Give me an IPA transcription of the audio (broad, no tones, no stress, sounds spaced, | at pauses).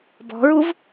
b ɔ̤ ɹ u v